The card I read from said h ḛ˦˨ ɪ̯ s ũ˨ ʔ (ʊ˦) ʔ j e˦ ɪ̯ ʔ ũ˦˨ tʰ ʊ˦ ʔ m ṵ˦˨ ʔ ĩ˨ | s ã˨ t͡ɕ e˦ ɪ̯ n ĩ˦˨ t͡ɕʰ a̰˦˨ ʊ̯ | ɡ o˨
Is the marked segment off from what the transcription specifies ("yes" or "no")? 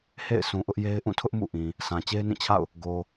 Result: no